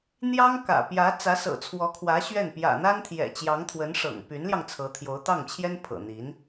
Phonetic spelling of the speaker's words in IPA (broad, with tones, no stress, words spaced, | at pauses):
n̪jɑ˥ŋkä̰˨˩ pjä˧˥ t͡sä˧˥sɤ̰˨˩t͡sʰwɔ˧˥kʰwä˧˥ ɕɥɛ˥˩n pjä̰˨˩n̪a˥nt̪ʰjɛ̰˨˩t͡ɕjɑ˧˥ŋ t̪ʰwə˧˥nʂɤ̰˨˩ŋ py˧˥nljɑ˧ŋ t͡sʰɤ˧˥t̪ʰjo˧˥ʊ̯ t̪ɑ˥˩ŋt͡ɕʰjɛ˥n pʰɤ̰˨˩n̪i˧˥n